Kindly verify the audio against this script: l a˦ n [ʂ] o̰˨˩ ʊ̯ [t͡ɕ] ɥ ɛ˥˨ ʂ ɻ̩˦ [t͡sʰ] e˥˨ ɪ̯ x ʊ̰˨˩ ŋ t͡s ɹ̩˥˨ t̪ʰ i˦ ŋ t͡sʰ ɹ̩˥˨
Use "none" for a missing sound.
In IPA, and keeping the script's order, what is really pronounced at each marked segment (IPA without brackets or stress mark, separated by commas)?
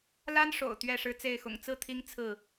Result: ʂ, t̪, t͡s